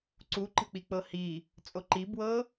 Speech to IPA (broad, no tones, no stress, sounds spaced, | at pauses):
ǀ u ǃ ə̤ k͡p i k͡p ɤ h i | t͡sʼ o ǃ i b w ɤ